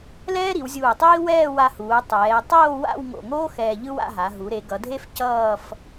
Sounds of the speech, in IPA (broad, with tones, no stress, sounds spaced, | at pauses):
l ɛː˥ ɾ i˩˧ w zʲ uː˧˩ tˤ iː˥ w ɛː˥˧ w a˧ h uː˩˧ tˤ ɛː˩˧ e̯ tˤ oː˥˧ w a̰˥˧ w ŋ o̰˧˩ ŋ oː˥ x ɛː˧ ʎ ɯ˥ w a̰˥˧ ɦ a˩˧ ɦ u˩˧ ɾ e˩˧ ɡ ʌ˩˧ dʱ e˥ f c ʌː˥˧ f